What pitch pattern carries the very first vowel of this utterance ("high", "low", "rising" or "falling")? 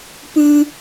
high